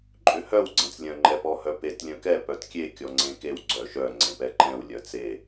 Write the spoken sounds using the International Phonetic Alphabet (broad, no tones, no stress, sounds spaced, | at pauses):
ǃʼ ʏ h œ w ɡ͡ǀ ẽ t͡s lʲ œ̃ ŋ͡ǃ ɛ p ɔ h œ p e t lʲ œ̃ k ɛ p œ t kʲ e kʲ ɔ ŋ͡ǀ ẽ k e w ɡ͡ǀ œ ʃ œ ŋ͡ǀ ẽ p ɛ ǃ ɛ̃ w lʲ œ t͡s e